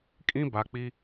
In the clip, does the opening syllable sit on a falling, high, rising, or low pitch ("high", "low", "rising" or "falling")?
high